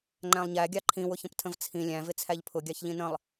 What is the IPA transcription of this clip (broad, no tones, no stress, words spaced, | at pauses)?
ŋ͡ǃæ̃lˠɲæɡʲɑ ǃʰĩwʊçə̃ptʰə̃v t͡sʰĩ lʲæ̃vɪ t͡sʰæʎpʰʊɡʲɑç ʎĩnə̃lˠ